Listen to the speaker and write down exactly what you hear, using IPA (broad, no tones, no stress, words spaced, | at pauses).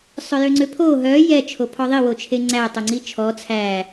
sˤœjøŋ͡ǀøpʰo ɦœ jɛ t͡ʃʰopʰɔðˤi wot͡ʃʰeŋ͡ǀæ tˤoŋ͡ǀit͡ʃʰɔ t͡sʰæ